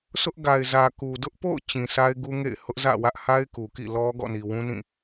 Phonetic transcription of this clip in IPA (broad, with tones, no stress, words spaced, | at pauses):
sʰʊ˦ʔɡa˨ɪ̯zä˨ ku˨ dʊ˦ʔpo̰˦˨ʊ̯ t͡ɕĩ˨sa˦ɪ̯ ɡu˦ŋḛ˦˨ɪ̯ hʊ˦ʔzä̰˦˨wä˦ʔ ha˦ɪ̯ku˨kḭ˦˨lɔ˦ ɡɔ̰˦˨ni˨wũ˦nĩ˦˨